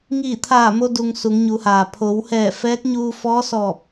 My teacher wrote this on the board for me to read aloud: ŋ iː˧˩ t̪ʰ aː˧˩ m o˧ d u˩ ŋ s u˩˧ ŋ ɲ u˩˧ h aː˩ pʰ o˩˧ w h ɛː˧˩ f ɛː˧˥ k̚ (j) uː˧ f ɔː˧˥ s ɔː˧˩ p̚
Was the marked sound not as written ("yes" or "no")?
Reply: yes